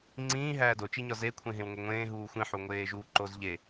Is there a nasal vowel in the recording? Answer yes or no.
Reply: yes